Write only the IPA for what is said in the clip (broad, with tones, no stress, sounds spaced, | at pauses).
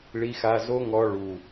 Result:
ɭ i˧ x a˧ z o˦ ŋ ɔ˧ ɭ u˨